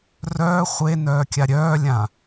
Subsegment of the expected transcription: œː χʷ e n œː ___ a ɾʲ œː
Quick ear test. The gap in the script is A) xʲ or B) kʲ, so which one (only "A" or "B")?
B